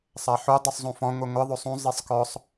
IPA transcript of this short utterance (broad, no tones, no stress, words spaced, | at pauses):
sˤaħu dˤusˤzˤũfɔ̃ ŋʷɨŋʷɘ ðˤosˤũ zˤisˤkɔsˤ